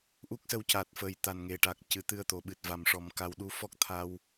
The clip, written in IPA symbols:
ʔu˦˥k̚sə˧w ca˨˩t̚fə˨˩j t̪a˨˩nŋe˨˩ʈa˨˩k̚ cɨ˨˩˦t̪ɨ˧ə̯t̪o˨˩ɓɨ˨˩t̚ va˨˩mʂɔ˨˩˦m ka˧w ɗu˧˥fɔ˦˥k̚ t̪ʰa˧w

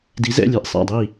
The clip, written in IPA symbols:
di˩˥zɛ̰˥˩lʲɛ˧ʔ sˤa̰˥˩dˤi˥˩

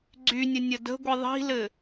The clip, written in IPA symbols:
ɡ͡ǀynʲə nʲədə̤ɡʷi ðˤi̤lɘ

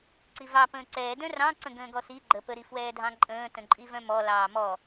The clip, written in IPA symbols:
ǀivɑ pə̃ːǀɛːdœ̃ rɑ̃ ǀə̃ɡə̃ːɡɔsi ɡ͡ǃəpəɾi fwɛːdʱɑ̃ǃʼə̃ːtə̃ ǃʼivœ̃mɔ lɑːmɔ

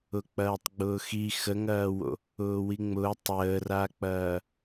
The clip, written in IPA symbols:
ʊk͡pɐːtˤɡ͡bʊːxi xəŋɐːwo̰ | ʊːwiŋ͡mʊː tˤəːrak͡pɐː

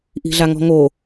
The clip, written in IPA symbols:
ʔi̤ɮaŋɔ̤ŋo

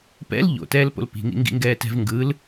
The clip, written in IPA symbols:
pɛ̰l ʎo̰tɛːlpo̰l pi̤ŋḭŋɡḭŋɡɛː tɛ̤v ŋɡɯl

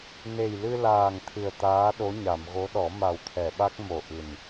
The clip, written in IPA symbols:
ne˨˩jlɨ˧laː˨˩ŋ t̪ʰɨ˨˩ə̯ t̪aː˧˥ɗo˧˥ɲa˨˩˨m ɣo˧˥ɗɔ˨˩˦ ma˨˩wt̪ʰɛ˨˩˨ɓa˦˥k̚ mo˨˩ʔɨ˨˩n

